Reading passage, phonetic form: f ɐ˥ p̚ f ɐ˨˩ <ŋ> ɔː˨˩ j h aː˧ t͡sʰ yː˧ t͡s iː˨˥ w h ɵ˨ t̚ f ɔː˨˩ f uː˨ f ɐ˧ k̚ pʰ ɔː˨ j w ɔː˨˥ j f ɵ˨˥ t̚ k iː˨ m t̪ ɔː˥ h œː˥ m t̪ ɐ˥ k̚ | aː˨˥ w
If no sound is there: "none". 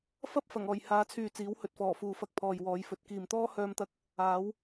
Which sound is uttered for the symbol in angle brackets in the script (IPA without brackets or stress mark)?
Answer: ŋ